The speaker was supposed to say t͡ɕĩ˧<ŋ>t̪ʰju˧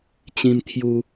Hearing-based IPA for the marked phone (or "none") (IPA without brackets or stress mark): m